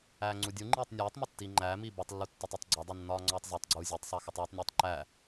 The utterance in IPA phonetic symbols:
æːŋ͡ǀudʲuŋ͡ǃiːtˤ nʲæːtˤmo tːiːŋ͡ǃæːmiː botˤlːu tːɒtˤotˤɡ͡ǀɒdˤu nːɒːŋ͡ǀɒːtˤzitˤɡ͡ǀuː zʲetˤsˤæ xutˤuːtˤnʲuːtˤ ǃæ

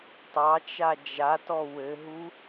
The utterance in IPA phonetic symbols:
tˤɑt͡ʃa d͡ʒatɔ wɘɦu

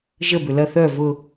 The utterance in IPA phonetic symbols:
ʒə bʏlɐ θœ vʊ

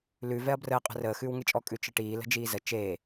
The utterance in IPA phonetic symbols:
lʉ vɛɐ̯brəː qʼə̤rəː xʉːwŋet͡ʃʼɔ kʼʉt͡ʃəʈiː lə̤d͡ʒiːzə t͡ʃeː

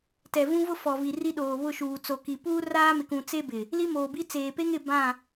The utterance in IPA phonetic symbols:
tɛ˨vũ˦vʊ˦ fɔ˨vi˨ ri˦ɗoː˨βʊ˦˨ʃuː˨ t͡so˨ki˨ puː˦raː˦mɪ˨kũ˨ t͡se˦bɪ˨ | li˦moː˨bi˦ t͡seː˨pe˦ŋɪ˦˨ bã˦˨

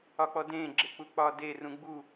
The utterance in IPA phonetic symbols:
ɒk͡pɔdẽ ɡ͡ǁek͡puk͡pɒde rũɡ͡bu

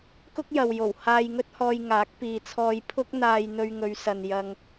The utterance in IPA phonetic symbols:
kʊ˥k̚jɐ˨wjo˨˩w haː˧jŋɵ˥t̚hɔː˧jŋaː˨˥k̚ piː˨t͡sʰɔː˧j pʰʊ˥k̚n̪aː˧j n̪ɵ˧ɥŋɵ˨˧ɥsɐ˨n jɐ˧ŋ

